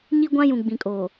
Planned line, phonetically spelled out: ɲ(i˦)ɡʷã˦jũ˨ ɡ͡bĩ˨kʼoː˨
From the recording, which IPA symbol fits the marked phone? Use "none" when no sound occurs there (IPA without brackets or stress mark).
i˦